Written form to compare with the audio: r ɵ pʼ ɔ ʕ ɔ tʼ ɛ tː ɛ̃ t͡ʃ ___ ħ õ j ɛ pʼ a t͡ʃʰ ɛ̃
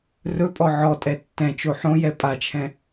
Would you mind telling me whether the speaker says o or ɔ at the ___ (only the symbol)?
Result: o